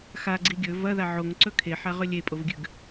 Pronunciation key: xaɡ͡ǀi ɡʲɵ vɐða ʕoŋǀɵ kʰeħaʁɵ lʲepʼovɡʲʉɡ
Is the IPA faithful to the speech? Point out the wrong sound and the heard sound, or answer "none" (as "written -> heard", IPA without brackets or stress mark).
none